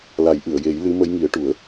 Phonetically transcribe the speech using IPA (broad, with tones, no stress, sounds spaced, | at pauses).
l a˨˩˦ j ʔ ɨ˨˩˨ ə̯ j e˨˩˦ j l ɨ˧˥ m ə˧˥ j ŋ i˨˩˦ ə̯ ʈ u˨˩˦ ə̯